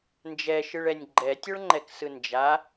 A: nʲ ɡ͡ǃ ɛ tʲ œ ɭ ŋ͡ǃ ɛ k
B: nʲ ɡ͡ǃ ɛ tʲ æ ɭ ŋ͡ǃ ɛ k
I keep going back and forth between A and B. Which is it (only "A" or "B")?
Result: A